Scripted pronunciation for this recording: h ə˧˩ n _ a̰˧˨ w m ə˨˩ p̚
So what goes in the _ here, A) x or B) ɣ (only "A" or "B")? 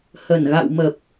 B